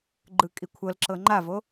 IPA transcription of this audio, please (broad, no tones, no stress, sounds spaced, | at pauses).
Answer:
ɡ͡ǃ ɯ kʼ i kʷʰ ɤ l ǁ ɤ ŋ͡ǃ a v o